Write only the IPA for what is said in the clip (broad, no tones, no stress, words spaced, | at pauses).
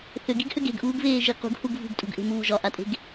θʏɡiɡhʏɡ e̤ɡʔuːɡveːʒi qṳɡhuɡ vṳɡtʼṳɡʔe̤muː ʒɒʔatʼe̤ɡ